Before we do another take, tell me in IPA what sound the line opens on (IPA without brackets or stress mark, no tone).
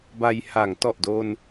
b